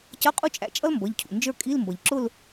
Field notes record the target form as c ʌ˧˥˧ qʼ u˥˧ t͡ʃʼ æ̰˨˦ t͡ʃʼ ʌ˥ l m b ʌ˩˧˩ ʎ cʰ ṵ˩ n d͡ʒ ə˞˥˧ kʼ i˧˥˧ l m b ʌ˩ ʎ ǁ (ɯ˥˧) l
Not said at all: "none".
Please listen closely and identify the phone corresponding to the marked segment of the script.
ʊ˥˧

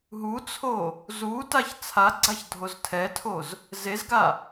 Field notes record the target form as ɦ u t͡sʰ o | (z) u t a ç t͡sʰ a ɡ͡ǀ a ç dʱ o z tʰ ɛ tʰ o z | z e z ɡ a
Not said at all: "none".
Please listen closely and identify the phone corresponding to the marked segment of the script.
z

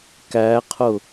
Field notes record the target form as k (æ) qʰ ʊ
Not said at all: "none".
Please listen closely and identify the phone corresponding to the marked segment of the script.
æ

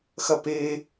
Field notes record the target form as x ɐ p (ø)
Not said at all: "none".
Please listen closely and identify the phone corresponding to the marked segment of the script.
e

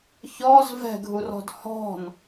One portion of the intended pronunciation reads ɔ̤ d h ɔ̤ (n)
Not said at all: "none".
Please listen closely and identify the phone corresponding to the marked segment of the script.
n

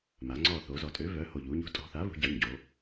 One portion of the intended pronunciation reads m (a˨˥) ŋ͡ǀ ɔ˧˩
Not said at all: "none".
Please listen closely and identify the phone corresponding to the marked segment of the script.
a˩˧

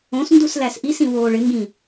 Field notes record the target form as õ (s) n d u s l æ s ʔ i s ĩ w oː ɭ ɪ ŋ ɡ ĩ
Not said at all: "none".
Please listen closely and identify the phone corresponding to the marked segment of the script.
s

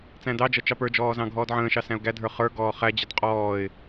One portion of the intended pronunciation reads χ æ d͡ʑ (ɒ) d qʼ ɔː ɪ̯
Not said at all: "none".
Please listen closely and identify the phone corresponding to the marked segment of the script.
ʌ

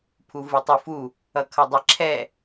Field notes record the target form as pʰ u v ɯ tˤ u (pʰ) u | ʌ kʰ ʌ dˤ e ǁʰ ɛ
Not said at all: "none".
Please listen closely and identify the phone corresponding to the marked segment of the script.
f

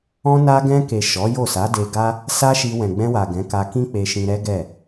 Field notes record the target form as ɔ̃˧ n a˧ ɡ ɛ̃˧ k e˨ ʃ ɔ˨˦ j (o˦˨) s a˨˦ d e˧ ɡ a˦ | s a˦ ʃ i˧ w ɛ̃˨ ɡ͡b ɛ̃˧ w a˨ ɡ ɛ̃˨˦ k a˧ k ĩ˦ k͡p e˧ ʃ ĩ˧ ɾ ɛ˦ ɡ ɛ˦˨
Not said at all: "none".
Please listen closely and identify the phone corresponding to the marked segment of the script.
o˦˨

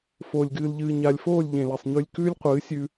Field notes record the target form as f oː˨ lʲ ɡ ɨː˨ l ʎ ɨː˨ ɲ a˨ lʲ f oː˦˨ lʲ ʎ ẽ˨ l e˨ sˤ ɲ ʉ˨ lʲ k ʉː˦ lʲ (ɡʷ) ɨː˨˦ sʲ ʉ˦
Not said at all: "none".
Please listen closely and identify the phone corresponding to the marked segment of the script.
qʷ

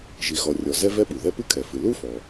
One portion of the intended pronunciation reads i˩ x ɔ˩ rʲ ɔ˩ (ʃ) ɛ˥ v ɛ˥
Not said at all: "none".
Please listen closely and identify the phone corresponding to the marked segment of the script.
z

